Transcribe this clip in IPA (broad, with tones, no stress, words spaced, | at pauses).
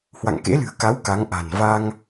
hwa̰˧˨ŋkḛ˧˥lɨ̤˨˩ə̯ ka˨˦w ka˨˦ŋʔa̤˨˩n va˧ŋ